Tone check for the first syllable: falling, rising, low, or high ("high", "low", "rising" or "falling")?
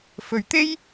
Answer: low